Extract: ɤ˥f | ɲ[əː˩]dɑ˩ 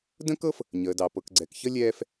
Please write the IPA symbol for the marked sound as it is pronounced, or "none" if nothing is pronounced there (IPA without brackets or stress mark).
əː˩